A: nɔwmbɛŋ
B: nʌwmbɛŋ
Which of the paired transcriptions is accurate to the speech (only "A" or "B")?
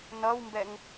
B